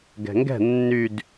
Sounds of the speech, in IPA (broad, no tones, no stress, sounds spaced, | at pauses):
ɡ ɛ̤ ŋ ɡ ɛ̤ nː y d